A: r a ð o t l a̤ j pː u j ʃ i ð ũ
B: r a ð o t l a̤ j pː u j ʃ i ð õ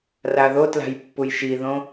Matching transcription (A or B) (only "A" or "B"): B